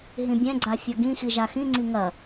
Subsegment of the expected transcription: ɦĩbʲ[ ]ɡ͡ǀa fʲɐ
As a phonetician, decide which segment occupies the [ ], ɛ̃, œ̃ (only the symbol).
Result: ɛ̃